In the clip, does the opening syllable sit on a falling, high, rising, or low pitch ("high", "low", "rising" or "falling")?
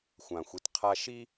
low